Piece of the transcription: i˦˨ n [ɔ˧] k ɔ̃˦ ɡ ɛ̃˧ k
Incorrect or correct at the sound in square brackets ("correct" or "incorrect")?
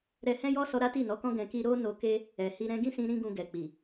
incorrect